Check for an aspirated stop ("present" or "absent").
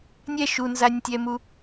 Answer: absent